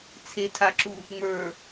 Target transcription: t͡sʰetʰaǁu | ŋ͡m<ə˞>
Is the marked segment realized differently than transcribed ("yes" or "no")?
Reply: no